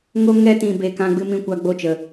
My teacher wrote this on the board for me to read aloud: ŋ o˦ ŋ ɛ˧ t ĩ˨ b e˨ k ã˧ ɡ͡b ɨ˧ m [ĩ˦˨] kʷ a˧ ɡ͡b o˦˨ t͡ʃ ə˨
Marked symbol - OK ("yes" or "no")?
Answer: no